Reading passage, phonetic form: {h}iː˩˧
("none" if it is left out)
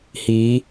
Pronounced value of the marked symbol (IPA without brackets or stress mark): h